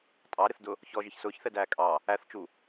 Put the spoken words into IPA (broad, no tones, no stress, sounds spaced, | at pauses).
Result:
tʼ ɑ ɾ ɪ θ d ʊ | ç ɔ ʒ ɪ ç s ʊː ç θ ɛ d æː kʼ ɑ | æ θ t͡ʃ u